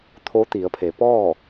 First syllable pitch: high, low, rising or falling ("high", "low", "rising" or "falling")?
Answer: rising